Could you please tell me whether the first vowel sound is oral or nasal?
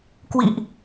oral